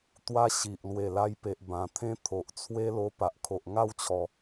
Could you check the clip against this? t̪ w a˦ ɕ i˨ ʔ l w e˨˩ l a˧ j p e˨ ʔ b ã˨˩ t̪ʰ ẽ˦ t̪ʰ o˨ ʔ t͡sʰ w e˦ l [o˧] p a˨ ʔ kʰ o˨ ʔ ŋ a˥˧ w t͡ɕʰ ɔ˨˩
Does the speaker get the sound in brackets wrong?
no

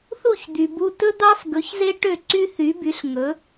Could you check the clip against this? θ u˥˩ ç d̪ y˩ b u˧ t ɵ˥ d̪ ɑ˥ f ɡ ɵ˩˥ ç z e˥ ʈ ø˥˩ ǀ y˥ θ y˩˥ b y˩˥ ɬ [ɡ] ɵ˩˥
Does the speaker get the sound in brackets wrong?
yes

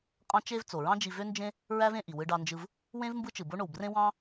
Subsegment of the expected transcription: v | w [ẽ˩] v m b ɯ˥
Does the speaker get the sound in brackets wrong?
yes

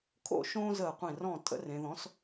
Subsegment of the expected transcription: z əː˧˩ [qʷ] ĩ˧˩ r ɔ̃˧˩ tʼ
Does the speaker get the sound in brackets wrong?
no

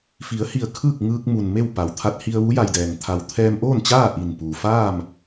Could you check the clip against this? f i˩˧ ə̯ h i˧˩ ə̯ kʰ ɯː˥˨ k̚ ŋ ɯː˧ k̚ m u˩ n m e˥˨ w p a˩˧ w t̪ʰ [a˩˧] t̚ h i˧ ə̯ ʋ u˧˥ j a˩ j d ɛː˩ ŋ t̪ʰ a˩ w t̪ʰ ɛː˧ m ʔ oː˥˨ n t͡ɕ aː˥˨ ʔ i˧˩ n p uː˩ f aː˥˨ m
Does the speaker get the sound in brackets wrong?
yes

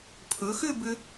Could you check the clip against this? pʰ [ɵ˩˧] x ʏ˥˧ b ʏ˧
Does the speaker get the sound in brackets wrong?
no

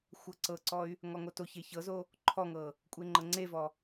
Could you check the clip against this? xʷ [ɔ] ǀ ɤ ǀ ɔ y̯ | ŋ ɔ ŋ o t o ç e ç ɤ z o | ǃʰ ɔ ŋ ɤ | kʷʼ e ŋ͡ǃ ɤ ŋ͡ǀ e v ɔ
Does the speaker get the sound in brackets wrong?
yes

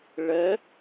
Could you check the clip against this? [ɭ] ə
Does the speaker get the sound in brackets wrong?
no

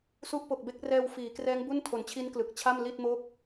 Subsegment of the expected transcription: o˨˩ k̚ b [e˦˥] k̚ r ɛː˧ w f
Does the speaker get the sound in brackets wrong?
no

